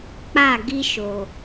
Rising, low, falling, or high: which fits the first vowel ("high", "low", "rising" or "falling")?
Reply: falling